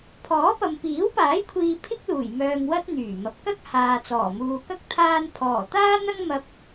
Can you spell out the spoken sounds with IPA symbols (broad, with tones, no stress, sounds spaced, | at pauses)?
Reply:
pʰ ɔː˨˥ p ɐ˨ m p iː˨˥ w p aː˨˥ j kʷʰ iː˧ pʰ ɪ˥ k̚ l uː˨˩ j m œː˧ ŋ w ɐ˥ t̚ n̪ yː˨˩ m ɐ˨ p̚ k ɐ˥ k̚ h aː˨ t͡s ɔː˨˩ m uː˨ k ɐ˥ k̚ t̪ʰ aː˧ n pʰ ɔː˨˩ t̪ aː˥ n̪ ɐ˥ ŋ m ɐ˧ p̚